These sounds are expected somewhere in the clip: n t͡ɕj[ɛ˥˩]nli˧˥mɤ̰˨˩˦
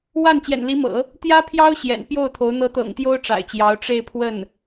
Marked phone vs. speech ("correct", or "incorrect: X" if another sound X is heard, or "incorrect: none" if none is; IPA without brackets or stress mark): incorrect: ɛ̰˨˩